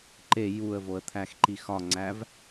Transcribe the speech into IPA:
ǃ e j u ə̯ v o ə̯ t̪ʰ æ x ǃ i x ɒ ŋ͡ǀ æ v

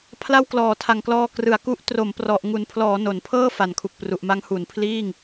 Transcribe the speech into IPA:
pʰ l a˥˩ w k l ɔː˩˦ tʰ a˨˩ ŋ k l ɔː˧ k r ɯ˩˦ a̯ k u˦˥ ʔ t r o˩˦ m p r ɔ˨˩ ʔ ŋ u˨˩ n pʰ l ɔː˩˦ n o˨˩ n pʰ ɤː˥˩ f a˩˦ n kʰ u˨˩ k̚ p r u˨˩ ʔ m a˦˥ ŋ h u˩˦ n pʰ l iː˥˩ ŋ

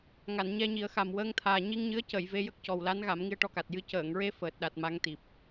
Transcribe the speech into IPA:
ŋ a˨˩˨ n ɲ ɛ˧ ɲ i˨˩˦ ə̯ x a˨˩ m w əː˧ ŋ t̪ʰ aː˨˩ ɲ i˧ ŋ ɲ ɨ˧˥ ə̯ c ə˨˩˨ j v e˧ j ə˦˥ k̚ c ɔ˨˩ w l a˧˥ n ɣ a˨˩˦ m ŋ i˧ ə̯ ʈ ɔ˧ k a˨˩ t̚ j ɨ˧ c əː˨˩˨ ŋ ɹ e˧ f əː˨˩ t̚ ɗ a˨˩ t̚ m a˧˥ ŋ t̪ i˨˩ p̚

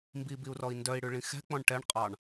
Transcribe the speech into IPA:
m b i b i u̯ r ɔ i̯ n d œ i̯ ɽ ʉ ɭ ĩ x ɛ̤ k͡p ɔ̃ ɳ ʈ ɛ ɳ qʼ ɑ ɳ

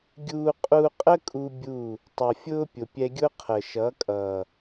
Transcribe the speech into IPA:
ɡʲ uː˧ qʼ u˧ qʼ ə˦ kʼ u˦ bʲ u˦˨ | tˤ ʌ˨ fʲ ʊː˦ pʲ ʊ˨ pʲ ɛ˧ ɡʲ ʊ˦ qʰ ə˨ ʃ ʌ˨˦ kʼ ʌː˨

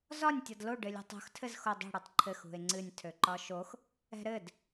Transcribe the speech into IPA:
z ɒ nʲ tʲ ɒ d l o ɖ ɘ lʲ ṳ tˤ o̤ x tʰ ɘ z x o dˤ o̤ ɽ ɨ tˤ ǃʰ ɘ x ṳ e̯ ŋ͡ǀ ɨ nʲ tʰ ø ǃ ɒ ʃ o x | ɛ̤ ɾ ɘ d

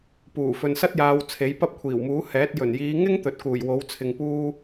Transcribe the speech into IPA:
p uː˨˩ f ɵ˨ n s ɐ˥ t̚ j aː˨˧ w t͡sʰ e˨˥ j p ɐ˥ p̚ kʷʰ iː˨˩ w m uː˨˥ h ɛː˨˥ t̚ j ɵ˨˩ n j iː˨˧ ŋ ɪ˥ ŋ t̪ ɵ˨˥ t̚ k uː˨˩ j w o˨˥ w t͡sʰ ɪ˨ ŋ p uː˥

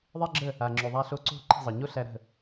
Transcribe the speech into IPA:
ðˤ e˥ ɡ͡ǁ ə˥˩ | a˩ ŋ͡ǁ ʉ˩ ðˤ a˧ ɬ o˧ ǀ o̤˥˩ ǃ i̤˥˩ zˤ ə˩ ɲ o˥ ɬ æ˧ ɾ ə̤˥˩

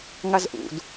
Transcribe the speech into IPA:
ŋ a z ʔ ṵ d

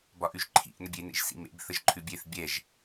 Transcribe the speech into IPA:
b ɒ ʔ ʉ ʒ ǃʰ ḭ ʔ n ə bʲ e n ḛ ʒ s ḭ m ḛ b θ ə ʒ ǃʰ ʉ bʲ e θ bʲ ɛ ʒ

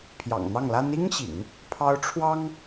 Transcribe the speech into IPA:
pʰ j ɑ̰˨˩ ŋ n̪ ɑ˥˩ ŋ l a˥ n i˥ ŋ ɕ ḭ˨˩˦ ŋ | pʰ ɑ˥ ʊ̯ ʈ͡ʂʰ w ɑ˥ ŋ

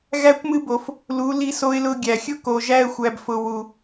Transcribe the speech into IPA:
ɣ æ˧ kʷ m ɨ˧ b o˨ f | l u˨˦ l i˧ s o˧ ɪ̯ l ʊ˧ ɡʲ æ˨ xʲ ʊ˦ k o˨ ʒ æ˧ ə̯ xʷ æ˨ b f ʊ˨ w u˨

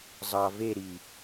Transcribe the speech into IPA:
zˤ ɑ v e ɾ i

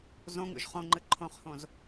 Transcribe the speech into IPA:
z õ ŋ ṵ ʒ χ õ ŋ͡ǃ ɨ ǃʰ õ χ h õ z

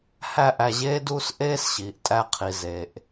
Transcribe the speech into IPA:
h æ˦ ʔ æ˧ ʑ eː˦ d uː˦ s ʔ eː˦ s ɕ iː˨ ʔ tʼ æ˧ qʰ i˨ z e˨ ʔ

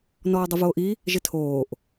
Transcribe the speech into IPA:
n ɔː dˤ ə v oː ʔ i | ʒ ɪ tʰ oː ʔ

